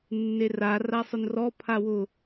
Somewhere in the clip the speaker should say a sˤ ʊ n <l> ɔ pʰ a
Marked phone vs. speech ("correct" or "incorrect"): incorrect